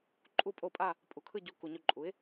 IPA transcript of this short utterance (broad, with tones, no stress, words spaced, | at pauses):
ǃʼu˦˨pʼo˦˨pʼa˦˨ | pʼu˩˥kʰɯ˦˨ɟu˨˩˦ ku˨ɲo˦˨ǃʼu˩˥ɪ̯